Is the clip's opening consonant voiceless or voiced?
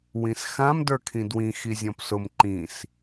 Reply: voiced